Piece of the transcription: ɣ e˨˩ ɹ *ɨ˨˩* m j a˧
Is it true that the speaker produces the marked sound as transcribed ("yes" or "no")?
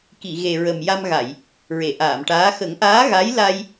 no